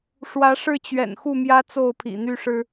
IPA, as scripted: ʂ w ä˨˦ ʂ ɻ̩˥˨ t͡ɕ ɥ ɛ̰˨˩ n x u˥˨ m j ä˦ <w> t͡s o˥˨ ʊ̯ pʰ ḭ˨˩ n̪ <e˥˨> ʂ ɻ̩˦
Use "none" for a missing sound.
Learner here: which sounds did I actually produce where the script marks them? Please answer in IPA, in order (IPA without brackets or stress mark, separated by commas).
none, y˥˨